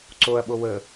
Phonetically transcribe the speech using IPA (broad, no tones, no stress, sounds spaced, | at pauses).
ǀ o ɐ̯ ɓ o w ə